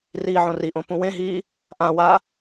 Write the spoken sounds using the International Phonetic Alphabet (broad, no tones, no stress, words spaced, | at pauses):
riːʕõriʔõ pũwẽɦiː | ʔãwa